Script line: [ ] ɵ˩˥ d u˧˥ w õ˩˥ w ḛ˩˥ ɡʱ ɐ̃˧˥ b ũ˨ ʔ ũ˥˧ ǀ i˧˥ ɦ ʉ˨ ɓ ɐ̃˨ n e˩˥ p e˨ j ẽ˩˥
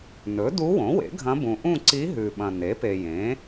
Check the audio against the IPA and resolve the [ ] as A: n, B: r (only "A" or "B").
A